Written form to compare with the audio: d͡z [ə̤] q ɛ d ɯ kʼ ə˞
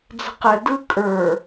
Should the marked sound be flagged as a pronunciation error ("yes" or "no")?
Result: no